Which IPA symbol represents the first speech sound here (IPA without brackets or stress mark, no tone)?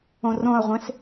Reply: õ